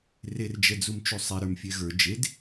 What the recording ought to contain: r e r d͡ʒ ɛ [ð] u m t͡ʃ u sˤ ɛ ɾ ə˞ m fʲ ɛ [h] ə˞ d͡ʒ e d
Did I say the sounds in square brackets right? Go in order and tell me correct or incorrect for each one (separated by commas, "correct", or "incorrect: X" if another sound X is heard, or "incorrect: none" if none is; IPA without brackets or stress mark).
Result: incorrect: d͡z, incorrect: ɣ